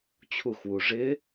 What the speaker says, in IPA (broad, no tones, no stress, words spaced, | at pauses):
t͡ɕʰuxwu ʐɪ